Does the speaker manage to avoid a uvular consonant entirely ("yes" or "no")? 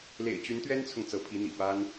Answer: yes